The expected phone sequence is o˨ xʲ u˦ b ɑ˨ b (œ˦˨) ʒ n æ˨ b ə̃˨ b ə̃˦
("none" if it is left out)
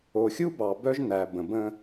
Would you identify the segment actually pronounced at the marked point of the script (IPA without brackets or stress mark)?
œ˦